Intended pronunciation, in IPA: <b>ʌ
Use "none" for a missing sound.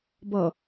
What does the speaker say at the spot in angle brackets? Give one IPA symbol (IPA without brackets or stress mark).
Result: b